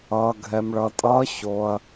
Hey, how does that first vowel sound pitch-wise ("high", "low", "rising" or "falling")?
low